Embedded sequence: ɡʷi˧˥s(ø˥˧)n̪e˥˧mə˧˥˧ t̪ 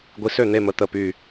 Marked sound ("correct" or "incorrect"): correct